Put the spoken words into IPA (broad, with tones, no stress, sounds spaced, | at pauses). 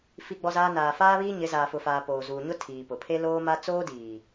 f i˦ ɡ͡b ɔ˦ z aː˦ n aː˨ f aː˦ β iː˦ ɲ ɪ˨˦ z aː˨ f ʊ˨ f aː˨ p oː˨ z uː˨ ɲ ʊ˦ tʰ iː˨ p ʊ˨ pʰ e˦ l oː˦ m a˦ t͡s oː˦ d iː˨